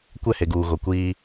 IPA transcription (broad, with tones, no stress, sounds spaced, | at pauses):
kʷ ɛ˦˨ h e˨ ɡ uː˨ ɣ o˨ kʷ iː˦